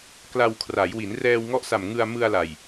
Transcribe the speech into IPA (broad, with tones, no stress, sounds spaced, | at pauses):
k l a˧ w kʰ r a˩˦ j w i˩˦ n r ɛː˧ w ŋ ɔ˦˥ ʔ s a˨˩ m ŋ ɯ˧ a̯ m ɯ˧ a̯ l a˨˩ j